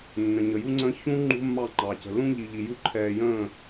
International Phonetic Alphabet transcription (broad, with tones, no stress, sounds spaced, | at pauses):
nː ə̃˨ ɲ ə˨ j u˦ ŋ͡ǀ ə̃ː˦ ç ũ˦ ŋ͡ǃ ṳ˦ mː ɑ˦˨ ŋ͡ǃ ɑ˨ c ə̤˨ l ũ˦ ʎ i˨ ʎ i˨ j u˦ ǃʰ ɛː˨ j ə̃ː˦˨